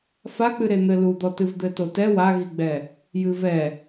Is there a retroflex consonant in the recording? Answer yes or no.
no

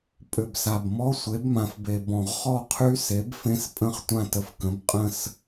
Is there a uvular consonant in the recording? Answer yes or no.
yes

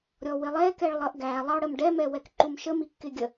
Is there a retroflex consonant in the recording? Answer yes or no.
yes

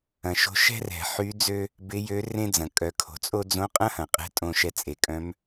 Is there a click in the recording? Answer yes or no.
no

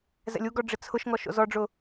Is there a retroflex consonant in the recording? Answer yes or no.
yes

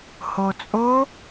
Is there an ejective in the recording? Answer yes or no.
yes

